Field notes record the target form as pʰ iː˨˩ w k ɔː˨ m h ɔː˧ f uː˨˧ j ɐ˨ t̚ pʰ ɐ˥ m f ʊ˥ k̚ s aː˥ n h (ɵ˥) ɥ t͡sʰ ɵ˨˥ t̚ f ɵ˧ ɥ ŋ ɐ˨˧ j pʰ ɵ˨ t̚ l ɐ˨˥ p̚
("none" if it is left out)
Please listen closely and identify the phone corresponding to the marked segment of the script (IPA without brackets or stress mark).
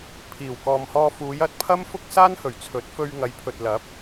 ɵ˨˩